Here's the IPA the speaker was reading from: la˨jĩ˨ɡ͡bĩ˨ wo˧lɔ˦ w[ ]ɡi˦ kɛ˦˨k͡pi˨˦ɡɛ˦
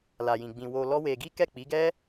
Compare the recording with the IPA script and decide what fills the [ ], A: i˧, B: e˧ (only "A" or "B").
B